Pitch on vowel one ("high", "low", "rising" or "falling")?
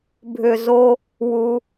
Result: low